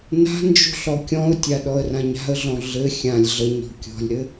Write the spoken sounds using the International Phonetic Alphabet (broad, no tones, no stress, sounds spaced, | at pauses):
n a̤ n d͡ʒ ṳ ɬ ɔ kʲ ɔ̃ ʊ̯ tʲ a ɗ ɔ ə̯ r ã ɲ a̤ ə̯ ɮ ɔ̃ ɮ ɘ xʲ ã lʲ ɮ ə ɲ ɔ̤ kʲ ɔ̤ lʲ ɾ ɘ